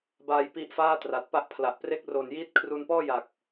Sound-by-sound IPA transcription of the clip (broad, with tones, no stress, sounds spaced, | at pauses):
b aː˧ j p i˦˥ ʔ f aː˥˩ t r a˨˩ t̚ p a˥˩ ʔ pʰ l a˨˩ ʔ p r e˥˩ k̚ r o˨˩ n j iː˦˥ t̚ kʰ r u˧ n p ɔː˥˩ j a˨˩ k̚